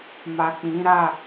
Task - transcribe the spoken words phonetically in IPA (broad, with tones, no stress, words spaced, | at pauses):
ma˨k͡pĩ˨˦ɾa˦˨